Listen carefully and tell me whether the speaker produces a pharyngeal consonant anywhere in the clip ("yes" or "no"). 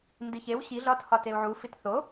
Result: yes